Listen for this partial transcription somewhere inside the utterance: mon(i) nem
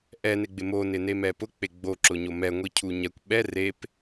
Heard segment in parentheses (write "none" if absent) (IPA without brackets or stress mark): ɪ